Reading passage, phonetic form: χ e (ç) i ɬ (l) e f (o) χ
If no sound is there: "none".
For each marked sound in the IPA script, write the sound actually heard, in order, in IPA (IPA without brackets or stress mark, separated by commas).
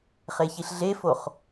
ç, ɮ, o